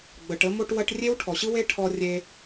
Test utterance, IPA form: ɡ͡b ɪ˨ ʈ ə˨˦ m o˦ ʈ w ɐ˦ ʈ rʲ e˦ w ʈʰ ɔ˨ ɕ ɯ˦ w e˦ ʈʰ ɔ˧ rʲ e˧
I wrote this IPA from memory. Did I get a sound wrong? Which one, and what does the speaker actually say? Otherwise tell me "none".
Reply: ɪ˨ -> ə˨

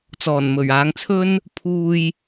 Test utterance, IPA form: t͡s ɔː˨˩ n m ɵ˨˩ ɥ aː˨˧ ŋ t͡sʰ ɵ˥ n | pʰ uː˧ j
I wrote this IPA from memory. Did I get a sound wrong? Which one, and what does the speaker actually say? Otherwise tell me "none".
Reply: none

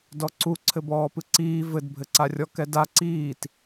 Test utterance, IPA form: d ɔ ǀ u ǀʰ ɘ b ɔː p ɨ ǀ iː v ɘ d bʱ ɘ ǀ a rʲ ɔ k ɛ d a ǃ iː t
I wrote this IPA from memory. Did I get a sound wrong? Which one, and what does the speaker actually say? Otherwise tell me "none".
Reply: ǃ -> ǀ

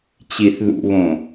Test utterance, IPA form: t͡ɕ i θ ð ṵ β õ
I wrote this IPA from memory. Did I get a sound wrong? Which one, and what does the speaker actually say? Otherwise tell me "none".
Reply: none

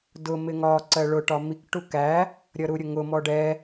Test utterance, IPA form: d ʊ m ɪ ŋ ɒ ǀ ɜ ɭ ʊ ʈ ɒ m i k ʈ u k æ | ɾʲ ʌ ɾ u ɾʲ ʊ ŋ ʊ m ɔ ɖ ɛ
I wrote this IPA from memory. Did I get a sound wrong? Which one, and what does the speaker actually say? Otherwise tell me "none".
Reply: none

